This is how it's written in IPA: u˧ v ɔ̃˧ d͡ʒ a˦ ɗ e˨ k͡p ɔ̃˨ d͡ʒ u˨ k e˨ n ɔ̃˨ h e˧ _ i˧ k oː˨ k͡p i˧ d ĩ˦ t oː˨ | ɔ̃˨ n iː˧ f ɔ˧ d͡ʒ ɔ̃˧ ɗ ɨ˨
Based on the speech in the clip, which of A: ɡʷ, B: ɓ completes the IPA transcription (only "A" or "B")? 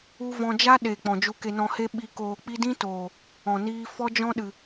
B